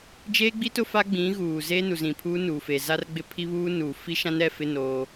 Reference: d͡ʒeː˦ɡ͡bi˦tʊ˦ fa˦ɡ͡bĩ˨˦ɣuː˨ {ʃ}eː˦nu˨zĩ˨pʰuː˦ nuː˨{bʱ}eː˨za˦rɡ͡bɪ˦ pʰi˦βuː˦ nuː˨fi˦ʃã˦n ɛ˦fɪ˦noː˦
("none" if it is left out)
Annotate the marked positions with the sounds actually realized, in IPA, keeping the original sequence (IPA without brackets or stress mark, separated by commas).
z, f